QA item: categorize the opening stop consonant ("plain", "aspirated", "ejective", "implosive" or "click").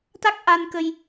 plain